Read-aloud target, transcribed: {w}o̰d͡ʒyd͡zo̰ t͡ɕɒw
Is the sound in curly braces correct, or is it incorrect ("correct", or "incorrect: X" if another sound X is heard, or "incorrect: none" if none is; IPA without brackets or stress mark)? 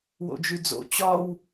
correct